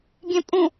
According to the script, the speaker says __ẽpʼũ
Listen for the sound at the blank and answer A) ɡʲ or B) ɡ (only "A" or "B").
A